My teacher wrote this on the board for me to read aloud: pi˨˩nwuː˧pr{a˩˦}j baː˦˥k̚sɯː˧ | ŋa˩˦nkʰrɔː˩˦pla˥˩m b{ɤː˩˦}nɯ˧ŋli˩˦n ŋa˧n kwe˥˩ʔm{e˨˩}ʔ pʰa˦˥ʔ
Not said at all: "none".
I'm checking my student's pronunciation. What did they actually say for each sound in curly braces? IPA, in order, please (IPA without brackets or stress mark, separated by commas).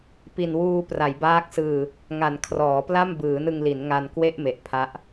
a˩˦, ɯː˩˦, e˨˩